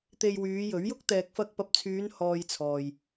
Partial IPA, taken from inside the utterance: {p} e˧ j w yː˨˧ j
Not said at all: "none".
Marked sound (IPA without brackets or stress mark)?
t̪